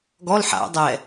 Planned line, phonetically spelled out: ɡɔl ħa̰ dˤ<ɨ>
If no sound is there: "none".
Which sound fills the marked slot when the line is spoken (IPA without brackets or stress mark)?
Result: ɛ